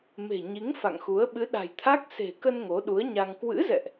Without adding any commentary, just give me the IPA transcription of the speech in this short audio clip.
m e̤˨˩ ɲ i˨˦ ŋ f a̰˧˨ ŋ x u˨˦ ə̯ ɓ ɨ˨˦ ɗ a̤˨˩ j t̪ʰ a˦˥ k̚ s e̤˨˩ k ə˧ n ŋ o˨˦ ɗ u˨˦ ə̯ ɲ a˧ ŋ k w ɨ̰˧˥ z ɛ̰˧˨ ʔ

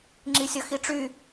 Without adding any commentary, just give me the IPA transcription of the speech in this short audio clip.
ŋ͡ǁ i sʲ ʌ x i ʈ͡ʂ y

